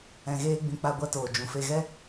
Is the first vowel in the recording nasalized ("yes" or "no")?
yes